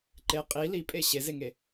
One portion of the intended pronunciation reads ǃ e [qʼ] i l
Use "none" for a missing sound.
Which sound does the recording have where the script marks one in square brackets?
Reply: qʼ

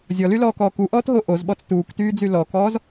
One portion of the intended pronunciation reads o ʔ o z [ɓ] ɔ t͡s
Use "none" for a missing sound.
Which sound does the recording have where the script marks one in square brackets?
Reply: ɓ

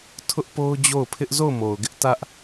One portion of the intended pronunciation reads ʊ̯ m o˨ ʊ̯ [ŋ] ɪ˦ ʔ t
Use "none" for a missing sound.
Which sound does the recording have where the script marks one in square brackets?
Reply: ɡ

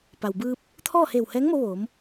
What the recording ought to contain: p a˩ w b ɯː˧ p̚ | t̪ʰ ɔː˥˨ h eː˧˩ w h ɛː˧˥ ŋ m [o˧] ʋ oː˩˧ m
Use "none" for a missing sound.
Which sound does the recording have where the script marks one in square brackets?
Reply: o˧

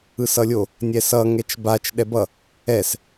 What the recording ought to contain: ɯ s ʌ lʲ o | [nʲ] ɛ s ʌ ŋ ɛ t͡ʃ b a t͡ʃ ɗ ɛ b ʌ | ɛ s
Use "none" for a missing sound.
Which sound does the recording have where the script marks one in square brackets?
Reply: nʲ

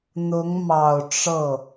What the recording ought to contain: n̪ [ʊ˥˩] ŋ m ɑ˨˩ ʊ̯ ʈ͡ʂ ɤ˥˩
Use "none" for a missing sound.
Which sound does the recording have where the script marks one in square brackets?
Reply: ʊ˧˥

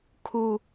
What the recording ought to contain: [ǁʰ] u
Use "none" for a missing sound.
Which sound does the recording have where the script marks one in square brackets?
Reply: kʰ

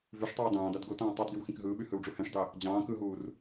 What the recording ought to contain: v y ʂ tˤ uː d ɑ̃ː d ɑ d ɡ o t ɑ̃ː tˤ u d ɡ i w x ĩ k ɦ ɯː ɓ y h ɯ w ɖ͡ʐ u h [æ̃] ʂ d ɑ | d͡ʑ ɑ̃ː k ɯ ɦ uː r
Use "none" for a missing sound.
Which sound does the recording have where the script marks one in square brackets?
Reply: æ̃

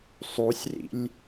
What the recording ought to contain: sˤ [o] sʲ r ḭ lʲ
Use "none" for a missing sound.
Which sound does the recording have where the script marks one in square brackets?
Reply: u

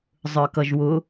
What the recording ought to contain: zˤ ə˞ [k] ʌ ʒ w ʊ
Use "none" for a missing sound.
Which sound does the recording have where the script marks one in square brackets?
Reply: k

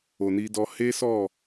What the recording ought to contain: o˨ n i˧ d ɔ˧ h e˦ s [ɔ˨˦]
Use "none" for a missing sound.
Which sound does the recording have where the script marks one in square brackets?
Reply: ɔ˦˨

